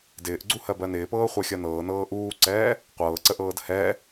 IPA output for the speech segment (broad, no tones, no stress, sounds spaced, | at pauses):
d ɪː ʔ ɡ͡ǀ u h ɜ b ɜ n ɪː p ɤː χʷ ɛ xʲ ɜ n ɤː n ɤː ʔ uː ǀ ɛː | qʷ ɤː ǀ ə ʔ ɤː d h ɛ